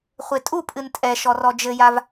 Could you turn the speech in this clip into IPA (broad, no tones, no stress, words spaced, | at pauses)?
χʷetʼu pʼɨntʼɛ ʃɔrɔd͡ʒɘjav